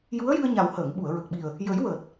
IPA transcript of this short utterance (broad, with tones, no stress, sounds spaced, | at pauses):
j u˧˥ ə̯ j ɨ˧ ə̯ ɲ a˨˩ w h əː˨˩˨ ŋ ɓ u˨˩˨ ə̯ ɹ ə˨˩ k̚ ɓ i˨˩ ə̯ | j ə˨˩˦ j w əː˨˩ t̚